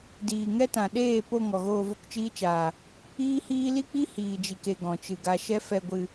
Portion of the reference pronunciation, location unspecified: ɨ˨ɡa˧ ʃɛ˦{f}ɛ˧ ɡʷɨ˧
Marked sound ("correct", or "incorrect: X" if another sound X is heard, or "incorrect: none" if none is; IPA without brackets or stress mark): correct